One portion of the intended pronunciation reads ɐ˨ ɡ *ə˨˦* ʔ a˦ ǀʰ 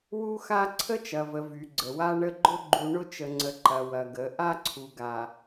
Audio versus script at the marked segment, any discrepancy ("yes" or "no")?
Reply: no